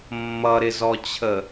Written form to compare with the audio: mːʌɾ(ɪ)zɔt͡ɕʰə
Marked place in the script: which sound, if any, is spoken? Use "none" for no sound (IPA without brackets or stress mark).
ɪ